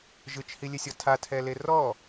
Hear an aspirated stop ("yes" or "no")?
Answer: yes